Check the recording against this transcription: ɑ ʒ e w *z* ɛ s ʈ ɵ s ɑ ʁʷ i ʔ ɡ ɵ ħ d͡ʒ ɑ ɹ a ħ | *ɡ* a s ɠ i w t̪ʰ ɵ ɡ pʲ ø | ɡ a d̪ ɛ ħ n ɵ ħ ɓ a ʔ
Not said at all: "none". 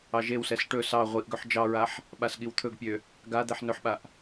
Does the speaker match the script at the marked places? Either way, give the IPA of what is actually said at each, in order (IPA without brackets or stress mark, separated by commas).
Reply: s, ɓ